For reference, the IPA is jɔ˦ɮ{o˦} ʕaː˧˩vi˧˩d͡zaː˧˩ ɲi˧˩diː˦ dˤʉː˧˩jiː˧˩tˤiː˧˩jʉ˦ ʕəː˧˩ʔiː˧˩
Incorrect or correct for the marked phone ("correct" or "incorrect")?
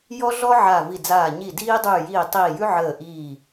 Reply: incorrect